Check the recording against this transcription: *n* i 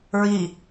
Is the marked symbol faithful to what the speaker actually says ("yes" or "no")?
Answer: no